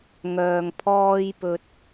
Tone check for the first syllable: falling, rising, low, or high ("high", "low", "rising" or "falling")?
low